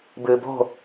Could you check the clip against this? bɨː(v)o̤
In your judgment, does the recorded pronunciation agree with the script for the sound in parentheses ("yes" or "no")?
no